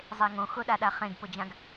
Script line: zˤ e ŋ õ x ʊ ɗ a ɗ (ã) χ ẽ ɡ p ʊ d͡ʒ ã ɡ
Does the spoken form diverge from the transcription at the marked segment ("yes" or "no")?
yes